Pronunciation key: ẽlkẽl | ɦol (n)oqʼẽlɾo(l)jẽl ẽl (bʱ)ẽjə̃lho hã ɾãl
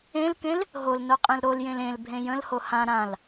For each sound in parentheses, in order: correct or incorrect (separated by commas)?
correct, correct, correct